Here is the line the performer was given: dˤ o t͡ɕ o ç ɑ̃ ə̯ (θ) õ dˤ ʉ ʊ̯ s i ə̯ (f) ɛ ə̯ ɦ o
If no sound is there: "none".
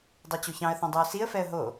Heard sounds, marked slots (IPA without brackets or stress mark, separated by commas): θ, f